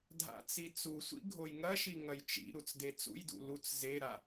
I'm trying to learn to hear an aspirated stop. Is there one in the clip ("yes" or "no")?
no